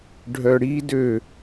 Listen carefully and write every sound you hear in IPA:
ɖʱ œ ɽ i d ø

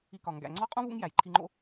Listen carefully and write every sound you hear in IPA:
i˧ k ɒ˨ ŋ ɡ æ̰˨ ŋ͡ǀ ɒ˦ qʼ ũ˦ v ṵ˦ ŋ j æ˨ j ǃʰ i˧ ŋ͡ǃ o̰˦

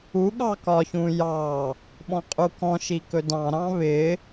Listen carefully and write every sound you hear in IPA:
u ɠ ɑ k ɒ ç ũ j ɑ | ɓ ɔ̃ qʼ u k ɔ̃ ʃ i k ɵ d ɑ̃ ɾ ɑ̃ β ɪ

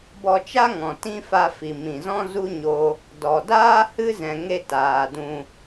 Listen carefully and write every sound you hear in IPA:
b ɔ˧ t͡ʃ a˦ ŋ ɔ̃˨ t ĩ˦ f a˧ f i˨ m ĩ˨ z ɔ̃˦ z u˦ ɲ o˦ | d ɔ˨ d aː˦ h ɨ˦ z ɛ̃˨ ŋ e˧ t aː˨ d ũ˧

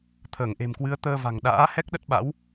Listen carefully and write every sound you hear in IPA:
t̪ʰ əː˧˩ ŋ ʔ e̤˨˩ m k w ɨ˨˦ ə̯ t̪ əː˧ v a̤˨˩ ŋ ɗ a̰ː˧˥ h ɛ˦˥ k̚ ɗ ə˦˥ t̚ ɓ a̰˧˥ w

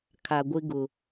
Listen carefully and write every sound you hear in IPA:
kʰ a˨ ɡʷ ɪ˦ ɡ ʊ˨

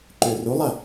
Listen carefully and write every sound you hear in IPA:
ǃ ø r u lˠ ɐ

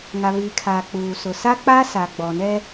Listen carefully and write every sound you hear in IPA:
ŋ a˨ β iː˨ kʰ aː˨ k͡p uː˨ s ʊ˨ s a˦ k͡p a˦ s a˨ ɡ͡b ɔ˨ n ɛ˦

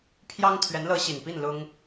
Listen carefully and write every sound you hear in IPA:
pʰ j ɑ˥ ŋ t̪ʰ ɥ ɛ˧˥ n l ɤ˧˥ ɕ i˨˩ n p i˥˩ n l ʊ˥ ŋ

